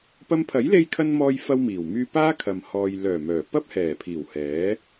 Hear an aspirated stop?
yes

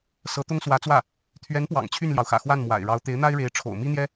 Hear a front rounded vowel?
yes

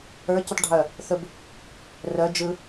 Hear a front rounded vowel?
yes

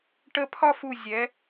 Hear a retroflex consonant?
yes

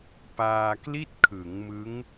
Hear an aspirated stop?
yes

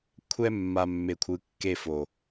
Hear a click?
no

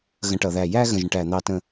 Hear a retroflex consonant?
yes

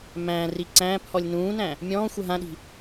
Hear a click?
yes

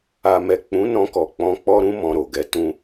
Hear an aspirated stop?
no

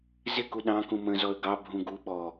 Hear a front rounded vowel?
no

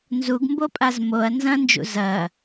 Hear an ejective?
yes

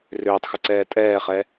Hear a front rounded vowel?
yes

